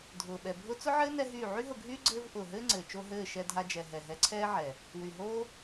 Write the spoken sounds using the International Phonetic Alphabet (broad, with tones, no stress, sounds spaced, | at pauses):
dʱ ʊː˨ ɓ ɛ˨ bʱ ʊ˦ t͡s ʊ˦ ʕ ɘː˦ n ɛ˦ ɦ yː˦˨ ʕ y˦ ɦ ʊ˧ ɡʱ yː˦ ɡ͡ǀ ɘː˦ v ʔ ʊː˨ ɦ ɘː˦ ŋ͡ǀ ɘː˨ t͡ʃ o˧ ɦ ɘː˦˨ ʃ ɛ˧ dʱ a˧ d͡ʒ ɛ˨ ɦ ɛ˨ ɦ ɛ˧ ǀʰ ɛː˦ ʕ ɛ˨ | w y˨ ɦ oː˦